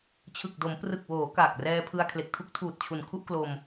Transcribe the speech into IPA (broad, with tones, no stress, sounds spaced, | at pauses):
t͡ɕʰ ɯ˨˩ k̚ d o˩˦ m p r ɯ˨˩ k̚ w oː˩˦ k aː˨˩ k̚ r ɛː˧ pʰ ɯ˧ a̯ kʰ l e˨˩ k̚ tʰ u˦˥ k̚ tʰ uː˨˩ t̚ t͡ɕʰ u˨˩ n kʰ u˥˩ ʔ k l o˧ m